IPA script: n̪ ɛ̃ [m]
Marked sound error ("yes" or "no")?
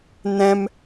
no